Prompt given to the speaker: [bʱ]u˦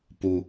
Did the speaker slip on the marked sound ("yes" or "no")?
yes